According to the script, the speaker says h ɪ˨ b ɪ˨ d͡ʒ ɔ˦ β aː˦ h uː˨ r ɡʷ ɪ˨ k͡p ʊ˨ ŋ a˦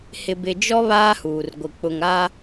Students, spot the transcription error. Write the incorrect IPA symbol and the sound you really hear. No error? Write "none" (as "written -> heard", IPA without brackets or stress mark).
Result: none